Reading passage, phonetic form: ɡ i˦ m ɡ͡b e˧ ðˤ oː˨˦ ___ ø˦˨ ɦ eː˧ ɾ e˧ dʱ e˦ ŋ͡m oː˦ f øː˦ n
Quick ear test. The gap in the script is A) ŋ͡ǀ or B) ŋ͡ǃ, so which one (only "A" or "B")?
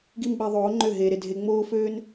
B